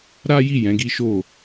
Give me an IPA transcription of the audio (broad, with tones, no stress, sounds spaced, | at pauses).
ɾ a˦ j i˦˨ j ɛ̃˨˦ ɡ i˦ ʃ o˦˨